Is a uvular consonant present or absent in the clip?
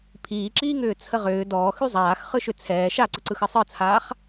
present